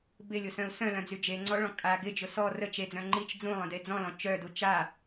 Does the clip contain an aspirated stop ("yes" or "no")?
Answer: no